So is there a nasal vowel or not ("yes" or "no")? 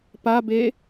no